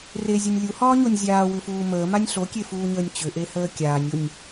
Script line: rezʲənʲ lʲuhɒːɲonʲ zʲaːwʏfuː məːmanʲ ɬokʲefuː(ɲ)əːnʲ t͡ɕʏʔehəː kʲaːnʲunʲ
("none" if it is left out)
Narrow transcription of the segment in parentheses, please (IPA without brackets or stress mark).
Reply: ɲ